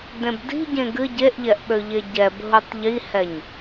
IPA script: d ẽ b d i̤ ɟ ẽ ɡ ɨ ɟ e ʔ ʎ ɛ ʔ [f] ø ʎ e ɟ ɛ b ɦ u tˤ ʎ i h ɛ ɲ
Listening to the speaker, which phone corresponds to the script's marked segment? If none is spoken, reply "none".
ɓ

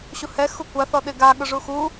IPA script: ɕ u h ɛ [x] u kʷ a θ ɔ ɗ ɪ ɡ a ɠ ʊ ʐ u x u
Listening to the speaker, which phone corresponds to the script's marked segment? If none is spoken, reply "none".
x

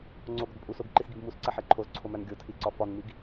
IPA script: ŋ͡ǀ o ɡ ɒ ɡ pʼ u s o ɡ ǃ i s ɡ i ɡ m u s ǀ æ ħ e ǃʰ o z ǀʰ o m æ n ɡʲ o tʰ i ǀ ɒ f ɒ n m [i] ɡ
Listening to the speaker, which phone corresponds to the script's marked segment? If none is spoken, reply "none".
i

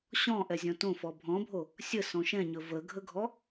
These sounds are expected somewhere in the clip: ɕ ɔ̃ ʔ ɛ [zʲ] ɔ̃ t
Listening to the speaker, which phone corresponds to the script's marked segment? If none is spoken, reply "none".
zʲ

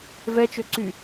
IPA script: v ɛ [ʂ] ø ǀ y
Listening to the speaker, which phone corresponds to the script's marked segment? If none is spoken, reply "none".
t͡ʃ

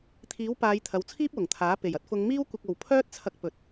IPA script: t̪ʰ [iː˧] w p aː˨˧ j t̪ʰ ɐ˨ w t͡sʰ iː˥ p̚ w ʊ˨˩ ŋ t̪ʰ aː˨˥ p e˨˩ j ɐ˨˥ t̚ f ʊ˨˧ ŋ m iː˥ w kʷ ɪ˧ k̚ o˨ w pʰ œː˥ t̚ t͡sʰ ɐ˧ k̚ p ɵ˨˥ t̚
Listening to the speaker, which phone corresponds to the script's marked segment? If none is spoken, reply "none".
iː˨˥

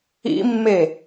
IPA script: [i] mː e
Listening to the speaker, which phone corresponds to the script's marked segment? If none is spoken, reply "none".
ḭ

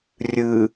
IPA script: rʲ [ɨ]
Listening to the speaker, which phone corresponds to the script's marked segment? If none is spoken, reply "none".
ɨ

